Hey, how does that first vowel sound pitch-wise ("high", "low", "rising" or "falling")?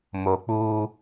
low